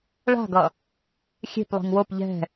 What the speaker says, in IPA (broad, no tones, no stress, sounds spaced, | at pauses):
ɭ a̤ ɡ ʌ | xʲ e̤ p lˠ i̤ ŋ w o p ʎ ɛ̤